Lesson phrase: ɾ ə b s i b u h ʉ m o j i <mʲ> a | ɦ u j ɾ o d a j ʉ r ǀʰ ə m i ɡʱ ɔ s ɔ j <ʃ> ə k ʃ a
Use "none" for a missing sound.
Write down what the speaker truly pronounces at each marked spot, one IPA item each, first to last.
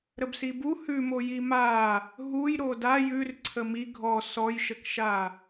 m, ʃ

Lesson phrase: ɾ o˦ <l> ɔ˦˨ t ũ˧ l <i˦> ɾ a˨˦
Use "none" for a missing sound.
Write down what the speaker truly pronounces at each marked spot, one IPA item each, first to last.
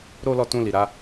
l, i˨

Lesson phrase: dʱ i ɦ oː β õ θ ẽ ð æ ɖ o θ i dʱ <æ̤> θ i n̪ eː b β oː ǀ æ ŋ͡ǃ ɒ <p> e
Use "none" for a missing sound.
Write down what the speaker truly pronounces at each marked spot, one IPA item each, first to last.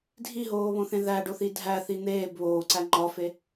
æ, f

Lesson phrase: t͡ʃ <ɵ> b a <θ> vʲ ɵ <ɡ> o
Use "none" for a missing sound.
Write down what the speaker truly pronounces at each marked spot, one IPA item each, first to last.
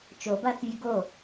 o, θ, ɡ

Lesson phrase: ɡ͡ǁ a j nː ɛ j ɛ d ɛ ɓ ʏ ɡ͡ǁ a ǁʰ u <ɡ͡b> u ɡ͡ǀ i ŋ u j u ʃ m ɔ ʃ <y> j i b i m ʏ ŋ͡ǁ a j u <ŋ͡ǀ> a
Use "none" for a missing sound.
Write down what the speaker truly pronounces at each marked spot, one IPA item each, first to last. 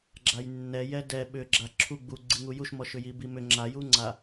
ɡ͡b, ʏ, ŋ͡ǀ

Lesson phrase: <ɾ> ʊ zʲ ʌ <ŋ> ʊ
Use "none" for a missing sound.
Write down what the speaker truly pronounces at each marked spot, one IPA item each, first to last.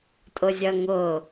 tʼ, ŋ

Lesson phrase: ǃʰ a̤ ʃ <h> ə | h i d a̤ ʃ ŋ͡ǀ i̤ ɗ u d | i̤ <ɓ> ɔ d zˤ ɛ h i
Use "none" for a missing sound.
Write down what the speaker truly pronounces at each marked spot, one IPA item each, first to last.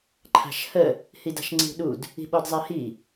h, ɓ

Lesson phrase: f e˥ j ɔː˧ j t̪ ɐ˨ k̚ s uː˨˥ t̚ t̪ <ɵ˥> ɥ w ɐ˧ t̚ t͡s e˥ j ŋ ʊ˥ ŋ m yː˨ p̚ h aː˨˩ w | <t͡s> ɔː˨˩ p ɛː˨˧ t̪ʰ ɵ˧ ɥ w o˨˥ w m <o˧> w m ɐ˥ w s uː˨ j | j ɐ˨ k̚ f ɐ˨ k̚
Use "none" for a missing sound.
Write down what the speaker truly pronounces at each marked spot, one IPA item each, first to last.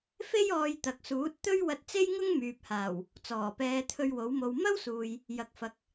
ɵ˥, t͡s, o˧

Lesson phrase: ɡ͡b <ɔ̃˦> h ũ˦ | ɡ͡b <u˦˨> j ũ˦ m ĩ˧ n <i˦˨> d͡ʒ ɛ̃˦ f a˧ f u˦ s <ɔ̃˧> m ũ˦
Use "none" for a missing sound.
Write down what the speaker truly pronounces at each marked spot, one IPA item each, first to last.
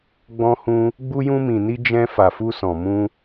ɔ̃˦, u˦, i˦, ɔ̃˧

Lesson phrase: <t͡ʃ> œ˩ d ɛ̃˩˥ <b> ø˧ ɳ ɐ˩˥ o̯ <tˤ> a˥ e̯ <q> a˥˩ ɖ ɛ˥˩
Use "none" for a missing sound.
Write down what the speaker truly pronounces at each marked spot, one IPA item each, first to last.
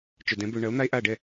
t͡ʃ, b, n̪, ʔ

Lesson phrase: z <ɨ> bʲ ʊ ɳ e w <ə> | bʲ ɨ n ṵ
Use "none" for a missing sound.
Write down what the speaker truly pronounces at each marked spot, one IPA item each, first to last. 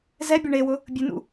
ɛ, ʊ

